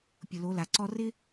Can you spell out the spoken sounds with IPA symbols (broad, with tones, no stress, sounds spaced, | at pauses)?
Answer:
pʲ ʊ˨ l o˨˦ l a˨ ǀ ɔ˦ r ɪ˦